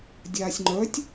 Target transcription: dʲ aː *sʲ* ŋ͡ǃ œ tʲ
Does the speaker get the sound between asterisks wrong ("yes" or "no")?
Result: no